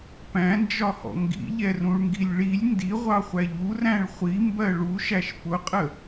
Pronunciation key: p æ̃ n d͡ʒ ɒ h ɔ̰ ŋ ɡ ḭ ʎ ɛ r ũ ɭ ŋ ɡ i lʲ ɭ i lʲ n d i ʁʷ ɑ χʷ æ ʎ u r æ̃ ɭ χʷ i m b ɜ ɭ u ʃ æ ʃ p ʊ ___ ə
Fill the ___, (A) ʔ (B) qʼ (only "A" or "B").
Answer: B